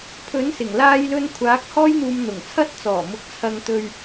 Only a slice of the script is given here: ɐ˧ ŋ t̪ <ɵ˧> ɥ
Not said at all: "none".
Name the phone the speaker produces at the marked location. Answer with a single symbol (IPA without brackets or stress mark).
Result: ɵ˧